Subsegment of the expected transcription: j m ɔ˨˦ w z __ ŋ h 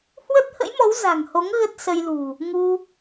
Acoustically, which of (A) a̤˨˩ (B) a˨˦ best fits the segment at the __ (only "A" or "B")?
A